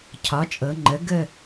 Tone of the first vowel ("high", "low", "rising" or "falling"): rising